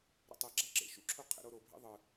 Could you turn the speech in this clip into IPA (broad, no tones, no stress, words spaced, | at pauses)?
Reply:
ɾɛ̰tˤeɡ͡ǁa ǁḛʃṵǁʰo qʰɛ̰ɾoɾobʱḭ ðˤɯ